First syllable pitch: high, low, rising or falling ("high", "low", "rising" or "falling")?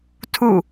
falling